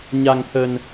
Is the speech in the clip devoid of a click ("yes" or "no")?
yes